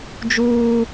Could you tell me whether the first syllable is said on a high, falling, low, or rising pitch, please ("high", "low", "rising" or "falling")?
high